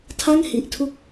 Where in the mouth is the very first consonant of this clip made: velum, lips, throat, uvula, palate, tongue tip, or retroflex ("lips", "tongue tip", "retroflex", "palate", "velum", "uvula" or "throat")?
tongue tip